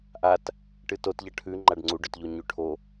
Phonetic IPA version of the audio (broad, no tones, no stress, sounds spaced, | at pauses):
ʔ a t | ʈ ɨ t o t ʎ ɐ ʈʰ ʉ ŋ͡ǃ a ɖ ŋ͡ǀ u ɖ ɵ t ʎ o ɲ ʉ ʈʰ o